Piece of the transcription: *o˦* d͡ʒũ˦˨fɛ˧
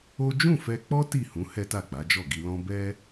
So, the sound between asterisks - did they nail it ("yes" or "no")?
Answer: yes